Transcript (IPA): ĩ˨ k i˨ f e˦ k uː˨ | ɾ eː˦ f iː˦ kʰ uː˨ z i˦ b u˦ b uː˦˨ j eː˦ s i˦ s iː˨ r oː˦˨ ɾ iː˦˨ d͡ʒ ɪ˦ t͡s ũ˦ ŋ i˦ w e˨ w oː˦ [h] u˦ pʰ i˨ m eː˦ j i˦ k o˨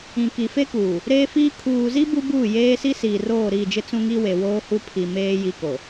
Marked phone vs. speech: correct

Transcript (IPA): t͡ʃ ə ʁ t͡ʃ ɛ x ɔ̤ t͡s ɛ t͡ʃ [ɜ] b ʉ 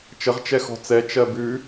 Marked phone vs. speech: correct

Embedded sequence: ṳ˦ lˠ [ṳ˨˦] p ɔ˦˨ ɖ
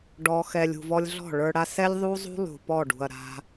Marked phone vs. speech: incorrect: ṳ˨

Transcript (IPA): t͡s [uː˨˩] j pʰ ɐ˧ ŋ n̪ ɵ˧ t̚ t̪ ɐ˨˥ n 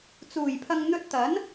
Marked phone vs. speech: correct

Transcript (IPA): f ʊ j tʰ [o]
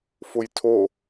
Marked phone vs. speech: correct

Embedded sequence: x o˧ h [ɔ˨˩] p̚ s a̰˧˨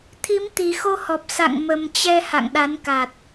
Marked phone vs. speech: correct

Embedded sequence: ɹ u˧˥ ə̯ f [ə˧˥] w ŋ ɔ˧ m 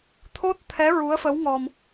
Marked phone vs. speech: correct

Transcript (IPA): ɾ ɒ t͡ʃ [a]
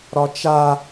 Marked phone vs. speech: correct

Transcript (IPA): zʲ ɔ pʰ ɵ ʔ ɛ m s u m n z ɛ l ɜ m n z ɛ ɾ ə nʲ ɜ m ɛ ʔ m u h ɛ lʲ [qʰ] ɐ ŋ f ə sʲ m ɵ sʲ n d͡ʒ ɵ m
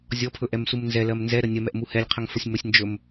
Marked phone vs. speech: correct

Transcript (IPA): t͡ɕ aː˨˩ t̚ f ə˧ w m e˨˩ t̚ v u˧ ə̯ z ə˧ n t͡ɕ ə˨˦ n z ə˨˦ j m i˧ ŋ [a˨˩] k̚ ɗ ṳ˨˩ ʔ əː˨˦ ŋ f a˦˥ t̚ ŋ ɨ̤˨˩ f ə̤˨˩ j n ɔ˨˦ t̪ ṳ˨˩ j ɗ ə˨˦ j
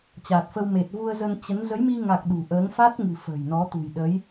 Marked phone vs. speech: correct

